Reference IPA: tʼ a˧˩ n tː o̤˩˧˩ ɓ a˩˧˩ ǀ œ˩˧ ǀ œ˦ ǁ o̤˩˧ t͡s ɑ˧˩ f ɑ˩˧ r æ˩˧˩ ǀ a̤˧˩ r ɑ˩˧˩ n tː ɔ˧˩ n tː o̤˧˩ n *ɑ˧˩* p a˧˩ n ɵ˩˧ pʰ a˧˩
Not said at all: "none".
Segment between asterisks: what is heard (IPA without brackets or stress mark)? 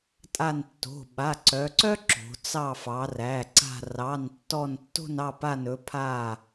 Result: ɑ˧˩